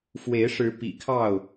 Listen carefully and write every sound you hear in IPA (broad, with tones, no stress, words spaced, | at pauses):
fwe˨˦ɪ̯ʂɻ̩˨˦ pḭ˨˩kʰɑ˥˨ʊ̯